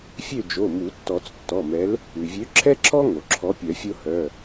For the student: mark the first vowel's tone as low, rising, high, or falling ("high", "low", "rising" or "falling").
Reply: falling